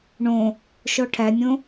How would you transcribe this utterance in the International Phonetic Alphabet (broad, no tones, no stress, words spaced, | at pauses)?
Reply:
ɳõ | ʃɔʈʰænʲõ